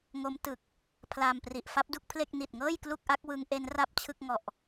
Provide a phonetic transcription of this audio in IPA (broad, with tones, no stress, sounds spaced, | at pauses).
ŋ o˦˥ m t ɯ˨˩ k̚ | pʰ l aː˧ m p r i˨˩ ʔ f a˦˥ p̚ d u˥˩ k̚ pʰ l e˥˩ k̚ n i˨˩ t̚ ŋ ɤː˥˩ j k l u˥˩ k̚ ʔ a˦˥ k̚ w ɯ˦˥ ŋ ʔ e˦˥ n r a˥˩ p̚ t͡ɕʰ ɯ˥˩ k̚ ŋ ɔ˨˩ ʔ